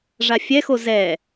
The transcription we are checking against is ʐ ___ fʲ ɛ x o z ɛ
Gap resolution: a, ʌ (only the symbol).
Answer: a